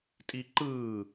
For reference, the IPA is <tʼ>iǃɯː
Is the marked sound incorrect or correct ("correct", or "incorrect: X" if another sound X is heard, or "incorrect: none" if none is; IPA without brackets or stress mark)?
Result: correct